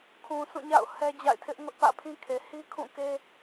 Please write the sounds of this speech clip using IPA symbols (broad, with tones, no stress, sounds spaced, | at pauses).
kʰ ũ˨ s ũ˦˨ ɲ a̰˦˨ ʊ̯ h ɛ˦ d͡ʑ a̰˦˨ ɪ̯ tʰ ɪ˦ ʔ ŋ ʊ˦ ʔ p ä̰˦˨ pʰ ĩ˦ kʰ e˨ h i˦ kʰ ũ˦˨ k e˦